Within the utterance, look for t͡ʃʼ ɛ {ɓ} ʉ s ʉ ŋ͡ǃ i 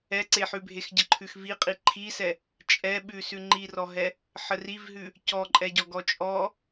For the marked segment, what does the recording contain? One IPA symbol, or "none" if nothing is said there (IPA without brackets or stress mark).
ɓ